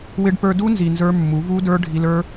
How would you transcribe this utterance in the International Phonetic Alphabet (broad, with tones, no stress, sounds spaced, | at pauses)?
w ɪ˧ ɖ p ə˞˧ d u˦ n z i˧ n z ə˞˦ mː u˨˦ v u˦ d ə˞˦ ɖʱ i˧ l ə˞˦